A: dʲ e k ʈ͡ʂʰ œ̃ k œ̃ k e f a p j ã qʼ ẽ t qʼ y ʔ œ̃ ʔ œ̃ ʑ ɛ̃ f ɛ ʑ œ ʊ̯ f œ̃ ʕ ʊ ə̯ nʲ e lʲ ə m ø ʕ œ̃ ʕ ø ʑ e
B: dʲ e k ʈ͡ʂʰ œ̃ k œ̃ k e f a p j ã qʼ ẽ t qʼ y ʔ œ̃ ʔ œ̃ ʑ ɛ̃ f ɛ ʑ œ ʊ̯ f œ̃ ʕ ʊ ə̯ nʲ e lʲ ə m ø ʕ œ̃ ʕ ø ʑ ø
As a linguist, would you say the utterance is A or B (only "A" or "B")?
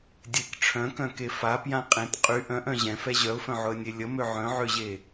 A